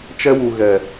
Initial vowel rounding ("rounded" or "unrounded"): unrounded